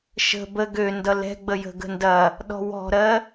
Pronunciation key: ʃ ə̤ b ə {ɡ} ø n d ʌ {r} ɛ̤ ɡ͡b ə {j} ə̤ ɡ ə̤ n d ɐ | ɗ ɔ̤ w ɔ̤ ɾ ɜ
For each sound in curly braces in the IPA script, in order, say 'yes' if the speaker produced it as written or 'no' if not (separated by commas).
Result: yes, no, yes